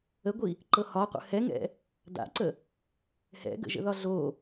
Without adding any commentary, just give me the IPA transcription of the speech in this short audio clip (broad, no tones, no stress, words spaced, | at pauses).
əɡʷi | ǃɤhɒqʷə̰ hɛŋɛ̰ | da̰ǀə | hɛ̰ɡə̰ʒə̰ ðɒɮo